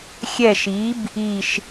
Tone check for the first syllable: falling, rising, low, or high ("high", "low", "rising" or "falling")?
falling